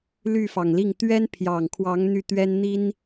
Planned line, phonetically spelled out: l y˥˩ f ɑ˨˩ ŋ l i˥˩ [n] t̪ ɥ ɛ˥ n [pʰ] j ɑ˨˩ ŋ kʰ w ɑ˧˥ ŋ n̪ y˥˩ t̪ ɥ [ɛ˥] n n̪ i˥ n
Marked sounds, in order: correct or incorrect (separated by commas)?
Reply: incorrect, correct, correct